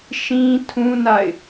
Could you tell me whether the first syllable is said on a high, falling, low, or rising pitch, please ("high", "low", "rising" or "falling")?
high